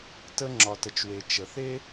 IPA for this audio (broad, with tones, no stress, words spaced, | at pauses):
tə˥ ŋ͡ǁɒ˩tə˩t͡ʃwe˩ t͡ʃə˩θe˥